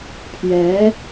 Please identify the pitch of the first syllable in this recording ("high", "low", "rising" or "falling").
rising